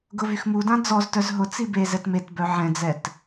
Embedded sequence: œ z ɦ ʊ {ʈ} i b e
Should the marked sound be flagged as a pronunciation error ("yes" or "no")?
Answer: yes